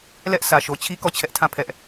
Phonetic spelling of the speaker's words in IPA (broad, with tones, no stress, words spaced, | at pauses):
lɛ˦ʔ sä˨ʃo˨t͡ɕʰi˦ kɔ˦˨t͡ɕʰɛ˦ʔtʰã˦˨ pʰɛ˦ʔ